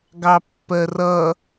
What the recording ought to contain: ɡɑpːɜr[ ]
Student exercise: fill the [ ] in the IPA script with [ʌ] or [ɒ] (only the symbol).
ʌ